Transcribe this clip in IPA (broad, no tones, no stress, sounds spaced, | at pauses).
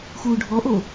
x uː ɖʱ ɔ ʔ o